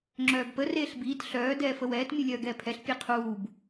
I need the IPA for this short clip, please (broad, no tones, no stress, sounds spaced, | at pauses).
ŋ͡ǁ œː b p ə r eː ɬ b iː t ɬ œː d ɛː f ə w ɛː t mʲ u lʲ œː ɡ ɛː pʰ ɛ ɬ pʲ e qʰ uː b